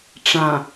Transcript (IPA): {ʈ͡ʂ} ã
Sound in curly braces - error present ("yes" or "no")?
no